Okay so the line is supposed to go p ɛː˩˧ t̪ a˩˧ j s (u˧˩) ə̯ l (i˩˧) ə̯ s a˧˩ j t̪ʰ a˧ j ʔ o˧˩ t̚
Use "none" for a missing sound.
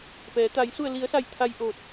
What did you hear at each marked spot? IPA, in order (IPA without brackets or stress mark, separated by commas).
u˧˩, i˩˧